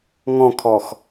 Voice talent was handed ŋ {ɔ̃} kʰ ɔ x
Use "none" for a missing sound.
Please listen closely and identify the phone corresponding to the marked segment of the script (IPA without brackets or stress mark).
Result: ɔ̃